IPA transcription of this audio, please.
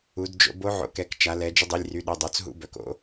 u˩˧ d d͡ʒ o̰˧ b o˧˥ ʕ o̰˩˧˩ k ɛ˩˧ k t͡ʃ a˩˧ l ɛ˩˧ d͡ʒ ə˧ dˤ i˩˧˩ lʲ r y˩˧˩ ɗ ə˩˧˩ dˤ o˩˧ t͡s ɦ ṵ˧˥˧ b œ˩˧ k o̰˧˥

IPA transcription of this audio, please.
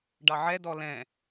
ɖ ɑ ʕ ɛ d ɔ l ɛ̃

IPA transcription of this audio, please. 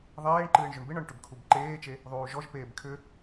ðˤ eː ɳ ǃ ɨː ɳ ʒ ʏ ɳ b ɨ ɳ ɔ ɳ ʈ ʏ b kʰ u b ǃ eː t͡ʃ e | ðˤ uː ʒ ɔ ʒ p eː b kʰ ʏ

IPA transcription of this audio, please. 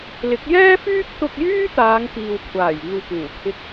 l ɪ˨˥ k̚ j ɛː˥ f yː˥ k̚ t̪ ʊ˧ k̚ j yː˥ t̪ aː˨˧ ŋ p iː˨ w kʷʰ aː˨˩ j iː˨ w p uː˨˩ kʰ ɪ˧ k̚

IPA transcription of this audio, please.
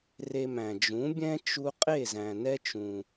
r e˧ m æ̃˩ d͡ʒ ũ˩˥ bʲ ɛ̃˥ t͡ʃ u˧ qʼ e˥˩ z æ̃˩ n ɛ˥ t͡ʃ ũ˩

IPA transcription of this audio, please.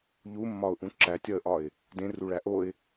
ʎ u mː ɒ ʊ̯ ʔ ũ ǁ æ tʲ ɒ ə̯ ʔ ɒ ɪ̯ | d ẽ r u ɭ æ ʔ o ɪ̯

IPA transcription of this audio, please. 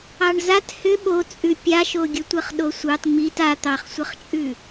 ɑ ɳ z a t h ʏ ɓ o t͡sʼ ʉ pʲ a ʃ o ɡʲ ə tʷ ə χ ɗ o sʷ ɑ t ŋ͡m i t a t̪ ɑ χ sʷ ə χ t͡ʃʼ ʉ

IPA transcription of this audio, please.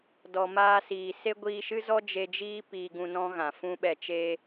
d ɔ˨ m aː˧ s iː˨ s e˦ ɡʷ iː˧ ʃ ɨ˦ z ɔ˦ d͡ʒ e˧ d͡ʒ iː˦ p iː˧ ɡ ũ˧ n ɔ̃˦ ɣ ã˨ f ũ˦ ɓ ɛ˧ t͡ʃ e˦

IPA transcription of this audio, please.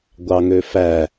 ɡʷ ɑ ŋ ø f æ

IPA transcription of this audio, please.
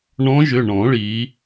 ɳ ɔ̃˧˥ ʒ ʏ˩˧˩ ɳ ɔ̃˨˩˦ ɭ i˩˥

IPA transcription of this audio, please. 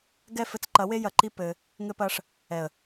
ɡ ɛ˦˨ f ɘ˧ t͡s ǃ ɐ˨˦ w e˦ j ɐ˧ ǃ i˦ p ɘ˧ | ŋ ɘ˧ p ɐ˧ ʂ | ɛ˨ ə̯

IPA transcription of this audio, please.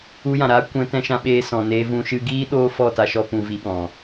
u˧ j ã˨ ɾ aː˦ kʷ ɛ̃˧ t ɛ̃˧ ʃ ã˧ ɓ eː˧ s ɔ̃˨ n eː˧ v ũ˧ ʃ ɨ˧ ɡ iː˦ ɗ oː˦ f ɔ˦˨ t a˧ ʃ ɔ˧ p ũ˧ v i˧ ɓ ɔ̃˨

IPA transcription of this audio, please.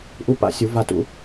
ʔ u˦ p a̰˦ sʲ u˨˦ v a˥˨ t ṵ˦

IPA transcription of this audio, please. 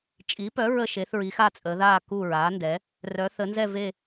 t͡ʃʼ i˩˥ p œ˩˥ ɹ ə˦˨ ʃ e˩˧ θ ɹ i˩˧ x a˦˨ t͡sʼ əː˩˧ ð aː˦˨ k u˦˨ ɹ aː˩˥ n d ɛ˩˥ | r œː˩˧ θ ə˩˧ n z ɛ˦˨ v e˦˨

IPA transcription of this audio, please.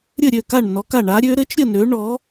ɾʲ ɘ˥˩ ɾʲ ø˥˩ k a˥˩ ɳ n ɔ˨˥ k a˥˩ ɳ a˨˥ ɾʲ ø˨˥ ɾ ɘ˨˥ t͡ʃ ɾʲ ə˥˩ n ø˨˥ ɳ ɔ˨˥

